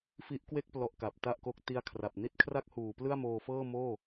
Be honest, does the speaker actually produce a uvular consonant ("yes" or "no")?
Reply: no